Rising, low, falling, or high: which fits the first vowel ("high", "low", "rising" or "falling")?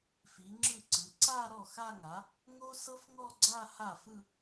rising